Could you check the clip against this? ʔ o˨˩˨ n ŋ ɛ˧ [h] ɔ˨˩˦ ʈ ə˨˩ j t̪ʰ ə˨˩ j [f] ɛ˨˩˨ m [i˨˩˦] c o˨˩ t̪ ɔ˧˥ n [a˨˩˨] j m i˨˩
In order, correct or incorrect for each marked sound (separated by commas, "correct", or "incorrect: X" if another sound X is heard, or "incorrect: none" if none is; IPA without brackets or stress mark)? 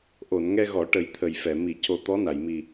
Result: incorrect: ɣ, correct, correct, correct